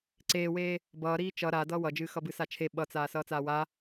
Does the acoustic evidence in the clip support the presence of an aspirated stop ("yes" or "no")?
yes